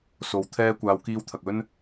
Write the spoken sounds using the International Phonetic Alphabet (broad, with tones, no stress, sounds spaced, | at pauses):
s o˨ w t̪ʰ ɛː˧ kʷ aː˨˧ w k iː˧ w t̪ʰ ɐ˨ k̚ ɵ˥ n